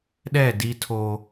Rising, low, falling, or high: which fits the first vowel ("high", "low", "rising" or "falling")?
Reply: falling